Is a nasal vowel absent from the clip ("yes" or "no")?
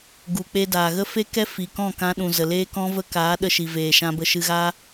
no